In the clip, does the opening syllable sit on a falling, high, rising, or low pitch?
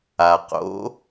low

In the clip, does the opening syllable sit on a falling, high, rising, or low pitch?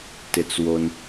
low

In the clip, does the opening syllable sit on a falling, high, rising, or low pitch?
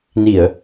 low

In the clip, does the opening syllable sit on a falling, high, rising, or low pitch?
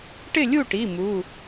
falling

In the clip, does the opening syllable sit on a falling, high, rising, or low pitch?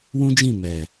high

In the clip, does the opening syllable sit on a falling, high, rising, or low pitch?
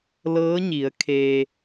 rising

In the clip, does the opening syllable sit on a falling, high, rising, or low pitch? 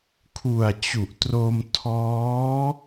low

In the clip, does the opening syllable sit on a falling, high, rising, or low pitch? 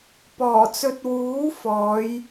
low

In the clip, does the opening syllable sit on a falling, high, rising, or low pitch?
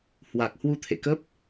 low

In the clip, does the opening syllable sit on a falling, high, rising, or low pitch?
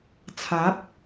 rising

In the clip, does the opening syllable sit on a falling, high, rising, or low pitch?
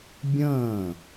falling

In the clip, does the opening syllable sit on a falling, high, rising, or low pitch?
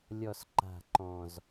low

